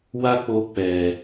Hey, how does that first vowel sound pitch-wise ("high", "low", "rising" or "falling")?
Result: high